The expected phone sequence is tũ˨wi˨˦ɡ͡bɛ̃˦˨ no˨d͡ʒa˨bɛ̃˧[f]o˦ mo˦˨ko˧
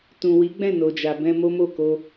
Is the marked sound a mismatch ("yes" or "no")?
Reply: yes